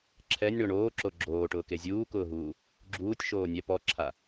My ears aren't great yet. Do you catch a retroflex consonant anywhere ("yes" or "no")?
yes